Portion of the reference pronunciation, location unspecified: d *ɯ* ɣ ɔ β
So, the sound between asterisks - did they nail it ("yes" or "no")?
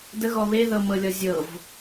no